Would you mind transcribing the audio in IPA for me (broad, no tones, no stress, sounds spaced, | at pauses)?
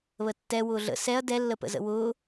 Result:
β ə tː ɛ w ʊː ɮ ə̰ s ɛ ɐ̯ d ɛ lː ə p ə̰ z ə̰ w ʊː